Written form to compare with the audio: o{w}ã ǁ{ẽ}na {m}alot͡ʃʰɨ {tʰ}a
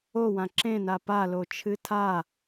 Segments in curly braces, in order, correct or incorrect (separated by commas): correct, correct, incorrect, correct